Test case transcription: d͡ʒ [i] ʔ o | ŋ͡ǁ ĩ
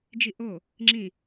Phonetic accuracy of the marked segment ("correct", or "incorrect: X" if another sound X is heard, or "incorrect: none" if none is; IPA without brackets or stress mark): correct